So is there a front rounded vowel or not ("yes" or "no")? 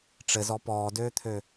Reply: yes